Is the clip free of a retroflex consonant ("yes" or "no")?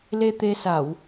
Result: yes